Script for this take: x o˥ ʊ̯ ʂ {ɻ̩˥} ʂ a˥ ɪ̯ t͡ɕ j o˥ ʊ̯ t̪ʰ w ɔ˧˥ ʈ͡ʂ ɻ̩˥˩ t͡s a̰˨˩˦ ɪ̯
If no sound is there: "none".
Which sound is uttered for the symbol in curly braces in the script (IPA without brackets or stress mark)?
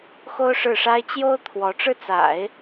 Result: ɻ̩˥˩